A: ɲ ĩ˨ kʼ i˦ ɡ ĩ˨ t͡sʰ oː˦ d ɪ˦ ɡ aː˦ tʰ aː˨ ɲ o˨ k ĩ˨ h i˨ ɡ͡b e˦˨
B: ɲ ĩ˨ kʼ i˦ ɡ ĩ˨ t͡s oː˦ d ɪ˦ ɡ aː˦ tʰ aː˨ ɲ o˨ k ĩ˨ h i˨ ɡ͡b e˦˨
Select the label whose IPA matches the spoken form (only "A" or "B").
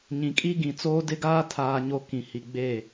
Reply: B